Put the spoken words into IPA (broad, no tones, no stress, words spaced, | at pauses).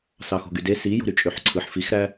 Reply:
sɑxo̤ɡyde sijo̤ ɾyt͡ʃʼøħǀʰɯħ fixɾæ